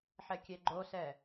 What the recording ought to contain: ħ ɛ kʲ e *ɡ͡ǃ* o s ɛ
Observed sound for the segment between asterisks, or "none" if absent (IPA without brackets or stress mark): ɡ͡ǃ